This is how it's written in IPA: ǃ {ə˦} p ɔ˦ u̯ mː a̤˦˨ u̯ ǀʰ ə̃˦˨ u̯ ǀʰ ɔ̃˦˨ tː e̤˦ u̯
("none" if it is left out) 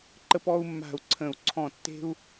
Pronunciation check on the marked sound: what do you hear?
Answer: ə˦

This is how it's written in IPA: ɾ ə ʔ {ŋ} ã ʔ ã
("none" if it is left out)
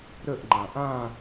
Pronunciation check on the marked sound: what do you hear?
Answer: ŋ͡ǃ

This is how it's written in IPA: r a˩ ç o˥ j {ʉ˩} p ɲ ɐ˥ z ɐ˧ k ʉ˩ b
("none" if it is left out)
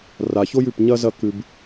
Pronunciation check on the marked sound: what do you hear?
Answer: ʉ˩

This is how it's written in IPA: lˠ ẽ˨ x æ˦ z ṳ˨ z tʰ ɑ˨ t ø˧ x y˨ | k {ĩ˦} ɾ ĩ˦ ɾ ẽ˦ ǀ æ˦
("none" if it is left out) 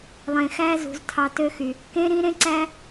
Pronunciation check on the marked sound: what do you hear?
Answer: ẽ˦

